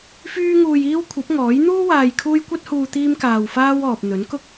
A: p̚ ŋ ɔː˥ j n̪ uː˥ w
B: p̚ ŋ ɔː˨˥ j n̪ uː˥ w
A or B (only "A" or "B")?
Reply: B